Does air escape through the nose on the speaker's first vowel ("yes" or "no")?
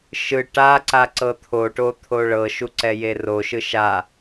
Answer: no